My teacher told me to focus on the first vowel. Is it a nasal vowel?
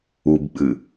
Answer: no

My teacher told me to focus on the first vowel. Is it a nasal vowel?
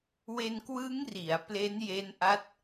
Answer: no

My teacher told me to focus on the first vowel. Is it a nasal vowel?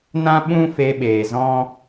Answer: yes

